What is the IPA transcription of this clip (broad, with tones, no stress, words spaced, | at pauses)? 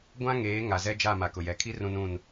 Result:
ɡʷã˦ŋeː˨˦ ŋa˨zɛ˦d͡ʒa˦˨ ma˨kʊ˨jɛ˨kʰi˦ rũ˦nũ˦˨n